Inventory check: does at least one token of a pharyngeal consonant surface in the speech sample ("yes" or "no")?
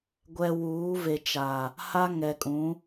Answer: no